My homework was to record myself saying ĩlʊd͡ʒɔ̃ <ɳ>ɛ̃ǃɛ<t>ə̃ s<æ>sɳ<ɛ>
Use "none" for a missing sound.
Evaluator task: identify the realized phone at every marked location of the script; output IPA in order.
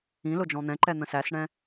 n̪, n̪, æ, ɛ̃

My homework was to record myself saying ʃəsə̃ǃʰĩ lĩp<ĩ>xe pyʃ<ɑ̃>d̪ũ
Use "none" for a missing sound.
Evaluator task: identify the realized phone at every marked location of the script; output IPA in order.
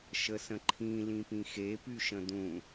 ĩ, ə̃

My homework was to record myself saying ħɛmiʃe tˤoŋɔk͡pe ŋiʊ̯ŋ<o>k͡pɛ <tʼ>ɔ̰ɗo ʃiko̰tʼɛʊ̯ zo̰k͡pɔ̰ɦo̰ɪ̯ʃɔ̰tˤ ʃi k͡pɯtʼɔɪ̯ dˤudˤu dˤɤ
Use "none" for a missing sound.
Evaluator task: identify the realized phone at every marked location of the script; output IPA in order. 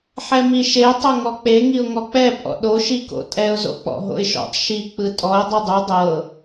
ɔ, pʼ

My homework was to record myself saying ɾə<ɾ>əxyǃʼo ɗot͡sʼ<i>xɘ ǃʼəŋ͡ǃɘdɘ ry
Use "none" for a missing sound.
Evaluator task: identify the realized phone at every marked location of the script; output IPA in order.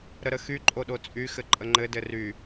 ɾ, y

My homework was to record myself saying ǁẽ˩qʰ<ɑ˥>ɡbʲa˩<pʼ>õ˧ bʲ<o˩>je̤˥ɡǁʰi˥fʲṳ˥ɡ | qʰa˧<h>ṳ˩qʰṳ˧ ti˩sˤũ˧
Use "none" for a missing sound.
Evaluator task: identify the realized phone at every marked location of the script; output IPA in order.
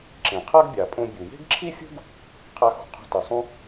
a˥, pʼ, u˩, x

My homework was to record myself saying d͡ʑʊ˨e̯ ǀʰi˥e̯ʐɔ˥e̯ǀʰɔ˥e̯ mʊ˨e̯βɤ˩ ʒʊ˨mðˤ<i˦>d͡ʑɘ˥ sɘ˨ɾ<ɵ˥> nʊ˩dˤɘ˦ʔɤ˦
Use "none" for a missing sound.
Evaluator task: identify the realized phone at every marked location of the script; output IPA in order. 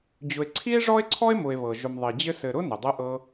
i˩, ʊ˥

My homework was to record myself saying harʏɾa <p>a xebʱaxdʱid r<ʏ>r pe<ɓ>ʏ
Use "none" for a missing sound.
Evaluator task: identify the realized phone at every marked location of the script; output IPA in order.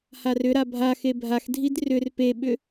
bʱ, ʏ, ɓ

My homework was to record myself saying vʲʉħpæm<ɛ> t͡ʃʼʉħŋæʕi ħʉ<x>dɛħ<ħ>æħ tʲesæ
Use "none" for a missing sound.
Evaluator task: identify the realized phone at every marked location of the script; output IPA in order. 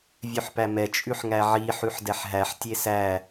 ɛ, ħ, ɦ

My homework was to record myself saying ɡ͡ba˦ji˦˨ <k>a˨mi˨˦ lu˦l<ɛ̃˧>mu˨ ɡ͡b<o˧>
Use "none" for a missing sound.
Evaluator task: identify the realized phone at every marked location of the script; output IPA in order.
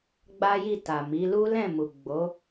t, ɛ̃˦˨, o˨˦

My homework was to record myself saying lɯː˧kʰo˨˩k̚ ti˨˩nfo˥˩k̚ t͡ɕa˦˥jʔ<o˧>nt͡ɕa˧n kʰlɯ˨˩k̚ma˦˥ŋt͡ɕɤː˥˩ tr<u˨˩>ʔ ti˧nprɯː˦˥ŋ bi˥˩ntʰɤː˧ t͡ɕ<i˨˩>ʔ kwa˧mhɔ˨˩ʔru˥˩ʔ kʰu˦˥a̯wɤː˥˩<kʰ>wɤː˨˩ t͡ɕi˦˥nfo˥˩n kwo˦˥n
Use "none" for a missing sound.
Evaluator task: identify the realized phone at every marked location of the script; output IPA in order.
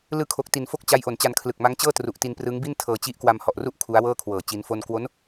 o˨˩, u˨˩, i˦˥, kʰ

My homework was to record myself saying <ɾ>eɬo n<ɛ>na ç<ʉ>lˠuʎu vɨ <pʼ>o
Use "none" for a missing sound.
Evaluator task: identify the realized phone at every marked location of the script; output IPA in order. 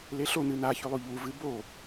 l, ɨ, ʉ, b

